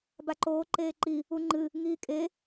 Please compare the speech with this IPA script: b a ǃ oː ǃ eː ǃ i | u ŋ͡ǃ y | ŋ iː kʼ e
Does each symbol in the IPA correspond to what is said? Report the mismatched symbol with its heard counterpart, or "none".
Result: y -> ɨ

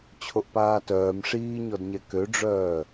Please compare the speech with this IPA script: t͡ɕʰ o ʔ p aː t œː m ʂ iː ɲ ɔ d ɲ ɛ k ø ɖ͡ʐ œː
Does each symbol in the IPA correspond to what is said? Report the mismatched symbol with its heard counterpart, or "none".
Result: none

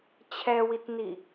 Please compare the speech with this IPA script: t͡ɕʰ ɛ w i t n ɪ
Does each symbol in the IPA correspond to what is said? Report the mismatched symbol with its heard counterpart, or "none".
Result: ɪ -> i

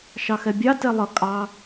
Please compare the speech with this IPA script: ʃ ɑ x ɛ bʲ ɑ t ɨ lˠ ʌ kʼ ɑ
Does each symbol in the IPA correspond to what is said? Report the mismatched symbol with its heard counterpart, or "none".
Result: ɨ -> ɛ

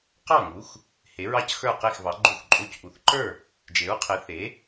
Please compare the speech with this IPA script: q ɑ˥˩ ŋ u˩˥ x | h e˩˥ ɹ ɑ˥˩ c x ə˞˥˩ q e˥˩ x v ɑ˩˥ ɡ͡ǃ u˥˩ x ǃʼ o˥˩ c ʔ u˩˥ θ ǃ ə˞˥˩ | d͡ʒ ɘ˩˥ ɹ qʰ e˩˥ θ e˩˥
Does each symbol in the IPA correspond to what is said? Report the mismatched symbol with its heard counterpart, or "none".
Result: ɘ˩˥ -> e˩˥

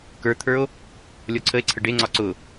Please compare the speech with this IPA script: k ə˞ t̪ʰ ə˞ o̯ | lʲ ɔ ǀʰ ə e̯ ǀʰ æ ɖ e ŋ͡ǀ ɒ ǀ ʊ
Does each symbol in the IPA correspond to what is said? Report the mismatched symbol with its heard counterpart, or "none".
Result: æ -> ə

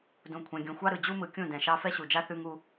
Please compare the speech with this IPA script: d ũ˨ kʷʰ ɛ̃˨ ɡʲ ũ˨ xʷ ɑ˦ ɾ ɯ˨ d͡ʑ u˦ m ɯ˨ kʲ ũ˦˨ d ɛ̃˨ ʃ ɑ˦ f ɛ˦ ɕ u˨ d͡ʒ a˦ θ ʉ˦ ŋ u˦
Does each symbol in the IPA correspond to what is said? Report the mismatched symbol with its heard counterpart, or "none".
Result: none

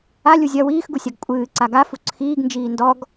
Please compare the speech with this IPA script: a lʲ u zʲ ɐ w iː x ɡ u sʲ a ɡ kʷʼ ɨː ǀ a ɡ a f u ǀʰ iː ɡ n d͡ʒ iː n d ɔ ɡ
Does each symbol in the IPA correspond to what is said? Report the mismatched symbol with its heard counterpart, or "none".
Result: none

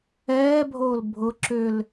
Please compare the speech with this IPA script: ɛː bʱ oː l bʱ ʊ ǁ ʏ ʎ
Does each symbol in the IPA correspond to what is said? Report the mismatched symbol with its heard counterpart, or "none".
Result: ʎ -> l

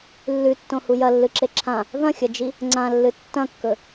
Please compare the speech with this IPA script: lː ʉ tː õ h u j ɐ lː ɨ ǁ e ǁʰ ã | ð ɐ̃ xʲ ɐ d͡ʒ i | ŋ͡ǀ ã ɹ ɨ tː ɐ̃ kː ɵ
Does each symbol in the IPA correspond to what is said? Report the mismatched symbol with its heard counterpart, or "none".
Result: ɹ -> lː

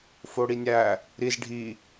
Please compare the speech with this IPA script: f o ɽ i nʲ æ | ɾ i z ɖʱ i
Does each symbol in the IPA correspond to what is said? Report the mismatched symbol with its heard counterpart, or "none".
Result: none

